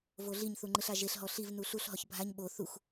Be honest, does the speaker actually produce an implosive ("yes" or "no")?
yes